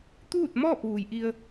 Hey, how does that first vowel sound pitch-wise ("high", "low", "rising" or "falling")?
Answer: falling